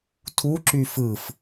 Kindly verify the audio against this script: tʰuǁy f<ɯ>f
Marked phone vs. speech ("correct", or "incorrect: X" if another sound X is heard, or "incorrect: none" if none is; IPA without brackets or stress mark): correct